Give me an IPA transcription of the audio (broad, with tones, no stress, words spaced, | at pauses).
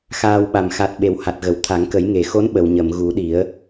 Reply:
xaː˧wɓa˨˩m xa˨˩t̚ ɓe˨˩wha˨˩t̚ɣə˨˩˨w t̪ʰa˨˩˦ŋkə˨˩˦jŋe˨˩xo˧˥n ɓə˨˩˨wɲə˨˩˨mɣu˨˩˦ɗi˨˩˦ə̯